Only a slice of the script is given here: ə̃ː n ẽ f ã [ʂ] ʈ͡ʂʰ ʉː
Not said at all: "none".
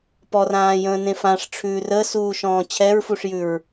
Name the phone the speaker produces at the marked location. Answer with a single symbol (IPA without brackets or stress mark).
ʂ